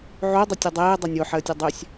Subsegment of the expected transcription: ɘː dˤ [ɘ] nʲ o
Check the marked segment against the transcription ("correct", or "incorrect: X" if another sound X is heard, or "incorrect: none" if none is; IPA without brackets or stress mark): correct